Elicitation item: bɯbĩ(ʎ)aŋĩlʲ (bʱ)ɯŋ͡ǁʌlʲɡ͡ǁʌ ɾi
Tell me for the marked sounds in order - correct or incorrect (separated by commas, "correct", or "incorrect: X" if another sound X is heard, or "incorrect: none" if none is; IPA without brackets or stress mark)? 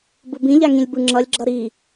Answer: correct, incorrect: b